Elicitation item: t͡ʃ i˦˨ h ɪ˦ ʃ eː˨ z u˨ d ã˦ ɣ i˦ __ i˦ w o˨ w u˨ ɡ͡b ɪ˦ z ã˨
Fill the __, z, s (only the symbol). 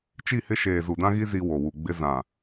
z